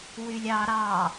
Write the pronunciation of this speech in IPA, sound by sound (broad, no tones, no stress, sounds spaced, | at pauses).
w y lʲ ɑ ɾ ɑ